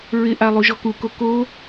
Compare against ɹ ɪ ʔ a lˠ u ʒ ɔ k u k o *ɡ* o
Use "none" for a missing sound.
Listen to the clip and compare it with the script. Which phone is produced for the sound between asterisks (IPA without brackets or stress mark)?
k